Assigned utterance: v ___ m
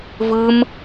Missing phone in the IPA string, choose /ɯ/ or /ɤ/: ɯ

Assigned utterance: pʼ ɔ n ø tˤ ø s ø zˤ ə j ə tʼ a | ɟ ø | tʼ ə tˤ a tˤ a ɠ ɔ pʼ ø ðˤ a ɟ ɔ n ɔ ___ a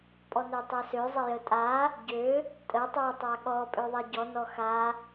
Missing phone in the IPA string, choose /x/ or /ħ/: x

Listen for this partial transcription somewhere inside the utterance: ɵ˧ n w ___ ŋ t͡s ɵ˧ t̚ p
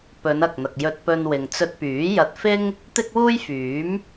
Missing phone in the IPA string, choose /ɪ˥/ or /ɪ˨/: ɪ˨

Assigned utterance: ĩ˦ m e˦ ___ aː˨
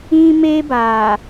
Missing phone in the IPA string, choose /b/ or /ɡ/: b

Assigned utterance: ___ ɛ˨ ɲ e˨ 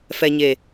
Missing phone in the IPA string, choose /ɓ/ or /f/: f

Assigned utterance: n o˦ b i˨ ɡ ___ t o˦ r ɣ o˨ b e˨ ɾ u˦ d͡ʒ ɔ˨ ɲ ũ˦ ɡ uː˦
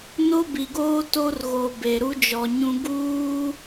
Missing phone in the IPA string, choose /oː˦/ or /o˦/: oː˦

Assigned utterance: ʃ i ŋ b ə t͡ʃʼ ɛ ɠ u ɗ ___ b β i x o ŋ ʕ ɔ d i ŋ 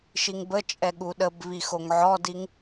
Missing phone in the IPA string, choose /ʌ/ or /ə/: ə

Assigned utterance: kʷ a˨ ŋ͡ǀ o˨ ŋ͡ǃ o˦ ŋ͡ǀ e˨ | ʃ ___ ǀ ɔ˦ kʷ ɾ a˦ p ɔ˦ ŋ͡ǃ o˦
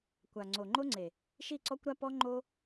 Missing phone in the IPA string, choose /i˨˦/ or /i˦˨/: i˦˨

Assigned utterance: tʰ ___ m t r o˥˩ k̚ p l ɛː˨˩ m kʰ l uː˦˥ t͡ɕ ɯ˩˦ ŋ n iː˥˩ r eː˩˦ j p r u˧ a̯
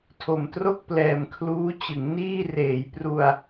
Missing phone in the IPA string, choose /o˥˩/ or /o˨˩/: o˨˩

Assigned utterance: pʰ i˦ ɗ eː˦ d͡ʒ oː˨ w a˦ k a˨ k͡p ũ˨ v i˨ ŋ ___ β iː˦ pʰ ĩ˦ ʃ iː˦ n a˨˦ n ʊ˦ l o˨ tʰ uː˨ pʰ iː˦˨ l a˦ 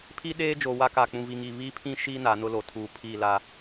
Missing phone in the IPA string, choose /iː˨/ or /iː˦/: iː˨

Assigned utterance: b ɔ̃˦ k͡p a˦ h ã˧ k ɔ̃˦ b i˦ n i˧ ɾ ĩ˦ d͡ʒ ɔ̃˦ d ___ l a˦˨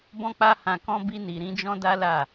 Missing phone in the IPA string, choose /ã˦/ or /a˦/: a˦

